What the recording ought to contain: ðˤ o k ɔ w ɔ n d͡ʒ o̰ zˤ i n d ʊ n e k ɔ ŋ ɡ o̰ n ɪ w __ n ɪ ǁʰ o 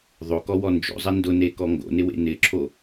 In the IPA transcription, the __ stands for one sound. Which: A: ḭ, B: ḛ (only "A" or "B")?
B